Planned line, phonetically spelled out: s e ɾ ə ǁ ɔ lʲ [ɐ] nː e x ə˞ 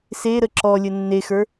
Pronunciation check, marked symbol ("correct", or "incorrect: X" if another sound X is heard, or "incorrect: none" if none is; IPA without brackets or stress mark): incorrect: ə